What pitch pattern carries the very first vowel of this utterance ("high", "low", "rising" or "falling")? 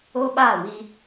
high